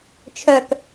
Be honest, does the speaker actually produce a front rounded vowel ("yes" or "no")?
yes